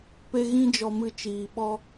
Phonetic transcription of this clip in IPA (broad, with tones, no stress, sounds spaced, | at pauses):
p e˦ ɣ ĩ˦ d͡ʒ ɔ˧ m ɨ˧ t͡ʃ iː˨ ɓ ɔ˦